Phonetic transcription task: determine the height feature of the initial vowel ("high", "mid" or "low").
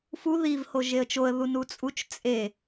high